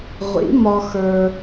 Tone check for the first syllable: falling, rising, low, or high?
rising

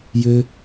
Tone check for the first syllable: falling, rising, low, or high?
high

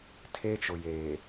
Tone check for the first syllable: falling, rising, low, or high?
high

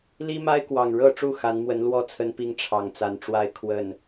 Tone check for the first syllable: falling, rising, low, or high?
high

